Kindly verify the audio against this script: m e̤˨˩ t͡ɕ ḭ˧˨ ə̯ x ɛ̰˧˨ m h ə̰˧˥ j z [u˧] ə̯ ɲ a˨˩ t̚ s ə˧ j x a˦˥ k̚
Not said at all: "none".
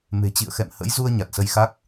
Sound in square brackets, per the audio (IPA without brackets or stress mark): u˧